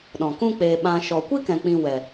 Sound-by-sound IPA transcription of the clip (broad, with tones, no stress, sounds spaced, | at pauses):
ɗ ɔ̃˨ k ũ˦ k͡p eː˧ ɓ ã˧ ʃ ɔ˨ kʷ i˦ k ɛ̃˨ k͡p ĩ˨ w ɛ˨